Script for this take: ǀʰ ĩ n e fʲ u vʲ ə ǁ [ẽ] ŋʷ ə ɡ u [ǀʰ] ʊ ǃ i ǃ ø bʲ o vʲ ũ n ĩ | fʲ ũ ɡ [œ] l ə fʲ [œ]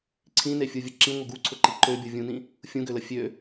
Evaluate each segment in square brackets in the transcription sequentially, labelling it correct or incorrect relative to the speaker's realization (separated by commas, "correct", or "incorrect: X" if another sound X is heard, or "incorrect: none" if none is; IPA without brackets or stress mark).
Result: incorrect: ĩ, correct, incorrect: ø, incorrect: ø